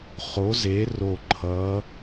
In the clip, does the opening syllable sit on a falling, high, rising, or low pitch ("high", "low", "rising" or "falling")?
rising